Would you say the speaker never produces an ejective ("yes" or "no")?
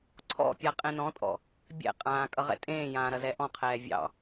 no